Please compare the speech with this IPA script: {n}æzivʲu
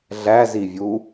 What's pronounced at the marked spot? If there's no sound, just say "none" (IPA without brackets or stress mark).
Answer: ɮ